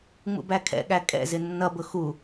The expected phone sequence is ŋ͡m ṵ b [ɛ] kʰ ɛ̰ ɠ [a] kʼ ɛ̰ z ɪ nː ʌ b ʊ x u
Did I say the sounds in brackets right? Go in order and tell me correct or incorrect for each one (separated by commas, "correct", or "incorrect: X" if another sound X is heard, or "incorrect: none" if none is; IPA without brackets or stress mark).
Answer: incorrect: æ, incorrect: æ